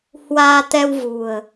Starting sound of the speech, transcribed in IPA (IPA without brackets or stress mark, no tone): h